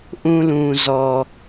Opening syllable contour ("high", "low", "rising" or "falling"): low